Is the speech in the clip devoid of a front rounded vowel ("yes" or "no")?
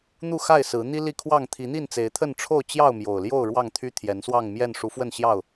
no